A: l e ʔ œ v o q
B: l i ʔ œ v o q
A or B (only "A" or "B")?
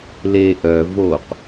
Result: A